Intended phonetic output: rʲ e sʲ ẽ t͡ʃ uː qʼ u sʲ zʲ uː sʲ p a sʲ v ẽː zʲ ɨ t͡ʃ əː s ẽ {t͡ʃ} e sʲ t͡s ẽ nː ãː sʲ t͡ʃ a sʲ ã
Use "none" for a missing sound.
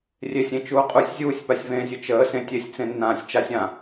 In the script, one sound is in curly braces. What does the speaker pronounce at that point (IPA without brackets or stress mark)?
tʲ